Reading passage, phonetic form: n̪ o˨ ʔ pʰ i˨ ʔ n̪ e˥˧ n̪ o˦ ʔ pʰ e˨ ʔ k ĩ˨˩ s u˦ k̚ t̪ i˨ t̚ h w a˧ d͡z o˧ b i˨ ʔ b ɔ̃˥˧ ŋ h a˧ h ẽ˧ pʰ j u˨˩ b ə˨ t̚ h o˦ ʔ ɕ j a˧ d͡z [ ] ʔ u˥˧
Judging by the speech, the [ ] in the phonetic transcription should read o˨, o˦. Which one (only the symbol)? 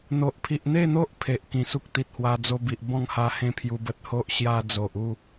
o˨